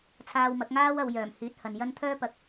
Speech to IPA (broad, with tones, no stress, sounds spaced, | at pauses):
t͡sʰ aː˧ w m ɐ˨˥ k̚ ŋ aː˥ w ɐ˨˧ w j œː˨˩ m h yː˨˥ t̚ h ɐ˨ n j ɐ˥ n t̪ʰ œː˥ p ɐ˨˥ k̚